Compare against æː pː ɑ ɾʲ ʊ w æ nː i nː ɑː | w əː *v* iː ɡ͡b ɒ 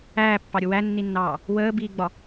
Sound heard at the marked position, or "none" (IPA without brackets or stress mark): b